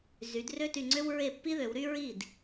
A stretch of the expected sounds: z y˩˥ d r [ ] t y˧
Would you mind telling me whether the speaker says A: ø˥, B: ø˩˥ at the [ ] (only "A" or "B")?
A